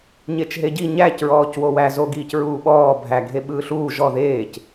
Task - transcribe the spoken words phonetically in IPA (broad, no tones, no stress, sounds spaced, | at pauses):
ɲ e t͡ʃ ɦ e ɟ i ɲ æ c ɹ ɔː c w o w æ z o ɡ iː c ɹ uː ɓ ɔː bʱ æ ɡʱ e ɓ ɯː ɬ uː ʒ ɔ ð eː c